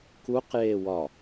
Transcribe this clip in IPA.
k u q j e w ɒ

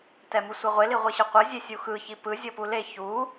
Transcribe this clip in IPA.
t ɛ m ɯ sʷ e ʁʷ e l i ʁʷ i ɕ ɤ qʷ ɤ zʲ e sʲ u x ɯ ç i p ɯ zʲ ɤ p u l e ç u

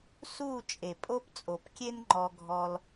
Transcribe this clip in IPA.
s uː˥˧ t͡ʃʼ e˧˩ pʼ o˥ p t͡sʼ o˧˩ p kʲ e˥ n ŋ͡ǃ ɔ˧ ɡʱ ɔ˧ l

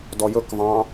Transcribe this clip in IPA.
d ɔ j ɵ k v ɑ̃

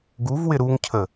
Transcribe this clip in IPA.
ɡ u v w ɪ ɾ u ŋ cʰ ə

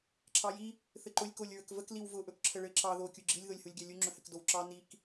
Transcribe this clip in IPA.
ǁʰ ɑ j i | θ ɘ ǃ ʊ lʲ k o lʲ ɹ ə k v ə k l i w v ʊ ʔ ɵ k ǁʰ ə ɭ ɘ ǁ ɑ ð o kʲ u ɡ͡ǁ i lʲ ð o lʲ h u lʲ ɡʲ ɑ lʲ u ŋ͡ǁ ɵ h ɘ k d o w ǁ ɑ n i k

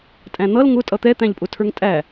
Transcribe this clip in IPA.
tʼ æ̃ n̪ ʌ l ŋ ʊ tʼ ʌ t̪ ɛ t̪ æ̃ ʎ pʼ ʊ tʰ ə˞ ŋ tʼ æ

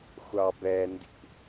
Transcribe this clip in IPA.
xʷ ɑ b ɛ n d ḭ

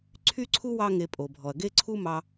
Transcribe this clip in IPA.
ǀʰ y˥ ǀʰ u˥ w ɑ˥ ŋ e˧ pʼ o˩ bʱ ɔ˩ ɐ̯ ɡ e˥ ǀʰ u˥ m ɑ˧

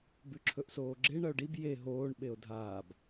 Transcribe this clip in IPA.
b ʉ ǁʰ ɵ ʔ s oː ɡ͡ǁ e ɳ ɐ o̯ ɖ i b j e ɦ oː ɳ ɓ e o̯ dʱ aː b

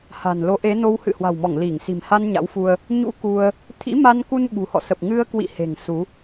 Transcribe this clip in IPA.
h a̤˨˩ n l o˨˦ ʔ e˨˦ n o˧ w h ɨ̰˧˨ h w a̤˨˩ w m ɔ˧˩ ŋ l i˧˩ ŋ s i̤˨˩ m h a˧ n ɲ a̰˧˥ w f u˧ ə̯ | ɲ ṵ˧˥ k u˧ ə̯ | t̪ʰ ḭ˧˥ m a˧ n k u˧ n ɓ ṳ˨˩ h ɔ̰˧˨ s ə˨˩ p̚ ŋ ɨ˧ ə̯ k w ḭ˧˨ h e̤˨˩ ŋ s u˨˦

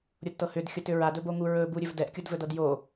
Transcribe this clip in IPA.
ɾʲ o d t ɤ h ʏ d xʲ o t ʏ ɹ a d ɵ b o ŋ u ɹ ɵ b u ɾʲ ɵ v d ɛ ʔ kʲ o d v ɵ d ɤ d j o

